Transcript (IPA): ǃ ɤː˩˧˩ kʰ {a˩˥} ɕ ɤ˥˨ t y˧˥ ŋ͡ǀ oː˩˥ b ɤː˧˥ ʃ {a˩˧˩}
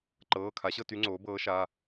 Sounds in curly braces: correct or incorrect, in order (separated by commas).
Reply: correct, correct